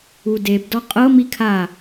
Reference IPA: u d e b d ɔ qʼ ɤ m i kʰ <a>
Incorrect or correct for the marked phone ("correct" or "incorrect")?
correct